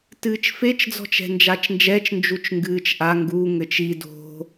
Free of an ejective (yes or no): yes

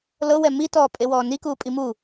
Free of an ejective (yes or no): no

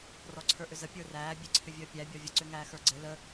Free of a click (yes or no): no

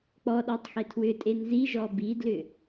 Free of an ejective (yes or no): no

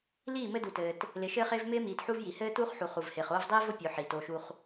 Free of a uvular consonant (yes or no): no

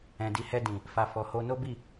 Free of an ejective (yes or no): yes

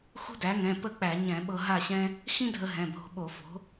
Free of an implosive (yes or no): no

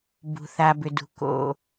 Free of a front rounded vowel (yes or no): no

